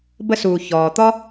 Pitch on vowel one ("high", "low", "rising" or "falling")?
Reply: high